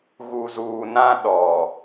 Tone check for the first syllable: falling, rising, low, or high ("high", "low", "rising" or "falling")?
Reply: low